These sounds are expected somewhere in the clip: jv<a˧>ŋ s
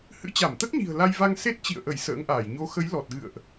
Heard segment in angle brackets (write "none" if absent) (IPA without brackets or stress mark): a˧